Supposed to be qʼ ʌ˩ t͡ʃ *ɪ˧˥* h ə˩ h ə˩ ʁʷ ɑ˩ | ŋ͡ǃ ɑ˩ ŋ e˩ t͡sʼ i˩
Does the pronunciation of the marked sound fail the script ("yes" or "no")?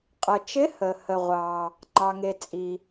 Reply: no